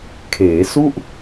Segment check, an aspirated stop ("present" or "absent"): present